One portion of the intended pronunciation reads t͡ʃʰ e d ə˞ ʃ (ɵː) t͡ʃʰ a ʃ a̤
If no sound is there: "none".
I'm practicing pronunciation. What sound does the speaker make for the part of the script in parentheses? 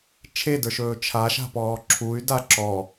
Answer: ɵː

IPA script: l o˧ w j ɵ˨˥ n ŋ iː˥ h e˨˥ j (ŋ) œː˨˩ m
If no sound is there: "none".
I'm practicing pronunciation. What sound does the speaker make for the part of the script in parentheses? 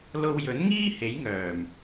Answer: ŋ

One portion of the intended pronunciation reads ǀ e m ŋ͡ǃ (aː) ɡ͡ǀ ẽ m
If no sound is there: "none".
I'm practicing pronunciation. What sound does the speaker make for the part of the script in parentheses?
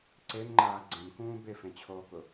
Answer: aː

